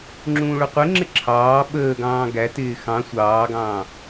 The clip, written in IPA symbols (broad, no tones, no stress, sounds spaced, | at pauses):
ŋ͡ǁ ũː ɭ ʊ qʷ ɪ ŋ͡ǁ ɪ ǁʰ ɑː ɓ əː ɡ ɑ̃ː ɡ æ t ɪː x ɑ̃ sʷ ɑː ɡ ɑ̃ː